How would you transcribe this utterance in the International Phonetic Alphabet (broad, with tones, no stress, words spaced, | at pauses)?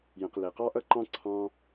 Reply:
jə̃˩q le˩ qɑ˥ʔʌ˥ǃɑ̃˥ ǀʰɑ̃˥